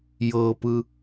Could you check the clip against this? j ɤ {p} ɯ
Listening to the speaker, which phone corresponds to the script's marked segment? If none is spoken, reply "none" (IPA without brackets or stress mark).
p